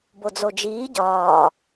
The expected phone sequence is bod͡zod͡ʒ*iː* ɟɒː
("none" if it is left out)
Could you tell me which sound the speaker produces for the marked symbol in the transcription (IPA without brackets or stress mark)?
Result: iː